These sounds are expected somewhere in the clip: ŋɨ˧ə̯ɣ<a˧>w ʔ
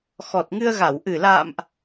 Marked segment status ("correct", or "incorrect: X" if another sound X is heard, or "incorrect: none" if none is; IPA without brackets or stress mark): incorrect: a˧˩